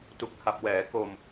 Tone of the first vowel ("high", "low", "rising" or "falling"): low